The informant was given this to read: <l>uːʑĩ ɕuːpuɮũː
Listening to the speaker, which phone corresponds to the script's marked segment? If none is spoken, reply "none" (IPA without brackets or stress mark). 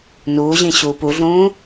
n